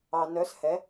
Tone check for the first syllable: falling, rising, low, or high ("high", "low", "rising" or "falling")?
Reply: low